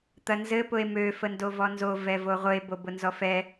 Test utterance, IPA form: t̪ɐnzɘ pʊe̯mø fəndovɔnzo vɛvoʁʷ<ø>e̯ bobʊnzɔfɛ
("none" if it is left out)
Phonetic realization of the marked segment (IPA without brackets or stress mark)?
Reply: ɘ